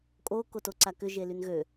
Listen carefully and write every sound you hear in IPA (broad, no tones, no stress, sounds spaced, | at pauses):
kʼ o k o t o ǀ a k ʏ ʒ e l y n ɣ ø